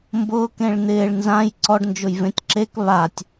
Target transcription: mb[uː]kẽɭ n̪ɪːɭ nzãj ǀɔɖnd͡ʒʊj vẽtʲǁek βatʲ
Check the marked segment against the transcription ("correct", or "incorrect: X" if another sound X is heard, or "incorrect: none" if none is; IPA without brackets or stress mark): incorrect: ʊː